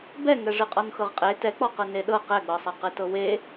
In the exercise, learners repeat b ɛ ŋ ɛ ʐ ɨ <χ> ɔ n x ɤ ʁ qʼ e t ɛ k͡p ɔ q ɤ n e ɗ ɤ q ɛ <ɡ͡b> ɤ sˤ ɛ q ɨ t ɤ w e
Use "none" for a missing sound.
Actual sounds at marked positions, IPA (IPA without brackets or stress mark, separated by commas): qʼ, ɡ͡b